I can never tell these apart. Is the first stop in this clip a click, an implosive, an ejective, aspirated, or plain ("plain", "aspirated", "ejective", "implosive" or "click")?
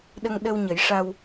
implosive